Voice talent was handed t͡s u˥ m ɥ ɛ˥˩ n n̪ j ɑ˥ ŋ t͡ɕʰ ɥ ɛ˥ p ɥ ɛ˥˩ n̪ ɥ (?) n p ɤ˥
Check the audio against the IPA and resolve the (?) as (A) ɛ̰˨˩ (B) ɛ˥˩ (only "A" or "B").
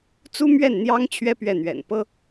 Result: A